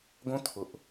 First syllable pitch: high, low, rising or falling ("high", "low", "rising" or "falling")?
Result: high